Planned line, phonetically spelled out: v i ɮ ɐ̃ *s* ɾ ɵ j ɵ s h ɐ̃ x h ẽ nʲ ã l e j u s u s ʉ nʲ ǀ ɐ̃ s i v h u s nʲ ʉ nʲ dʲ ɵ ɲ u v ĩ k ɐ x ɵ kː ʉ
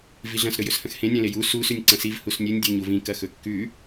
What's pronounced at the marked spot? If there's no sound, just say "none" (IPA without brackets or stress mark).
s